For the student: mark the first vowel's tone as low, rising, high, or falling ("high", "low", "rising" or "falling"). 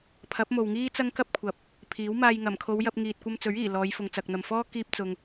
rising